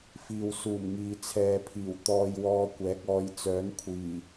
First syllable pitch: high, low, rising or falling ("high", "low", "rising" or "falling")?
low